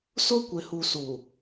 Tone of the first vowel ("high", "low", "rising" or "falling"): high